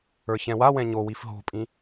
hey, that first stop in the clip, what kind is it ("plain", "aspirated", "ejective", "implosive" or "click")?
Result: ejective